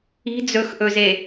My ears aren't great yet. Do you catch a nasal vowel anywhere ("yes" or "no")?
no